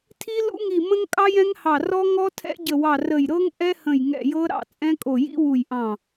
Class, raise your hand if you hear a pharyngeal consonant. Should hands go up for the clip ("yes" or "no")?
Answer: no